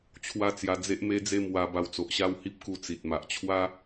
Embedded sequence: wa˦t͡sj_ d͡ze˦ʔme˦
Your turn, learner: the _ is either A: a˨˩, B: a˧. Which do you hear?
B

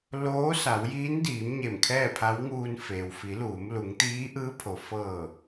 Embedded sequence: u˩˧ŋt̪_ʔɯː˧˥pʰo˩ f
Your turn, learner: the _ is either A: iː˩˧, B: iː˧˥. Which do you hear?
B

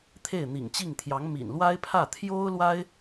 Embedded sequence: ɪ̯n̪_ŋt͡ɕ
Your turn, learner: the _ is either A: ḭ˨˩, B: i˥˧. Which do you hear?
A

